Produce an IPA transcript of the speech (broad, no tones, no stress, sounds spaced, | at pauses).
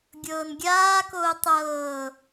ɡʲ ɤː n ɡʲ aː k oː tˤ ɤː